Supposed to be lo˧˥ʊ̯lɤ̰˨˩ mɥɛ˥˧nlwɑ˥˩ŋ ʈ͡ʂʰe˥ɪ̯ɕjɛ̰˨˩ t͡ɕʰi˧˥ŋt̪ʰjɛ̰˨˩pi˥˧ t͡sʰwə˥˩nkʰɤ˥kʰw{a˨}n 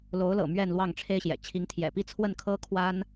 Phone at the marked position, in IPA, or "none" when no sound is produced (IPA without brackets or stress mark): a˥